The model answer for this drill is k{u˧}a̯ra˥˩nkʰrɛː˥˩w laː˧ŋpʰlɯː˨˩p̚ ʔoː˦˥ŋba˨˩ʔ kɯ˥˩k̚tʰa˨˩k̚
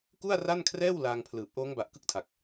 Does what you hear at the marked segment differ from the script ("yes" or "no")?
yes